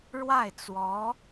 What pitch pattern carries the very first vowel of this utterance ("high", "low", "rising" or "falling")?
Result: falling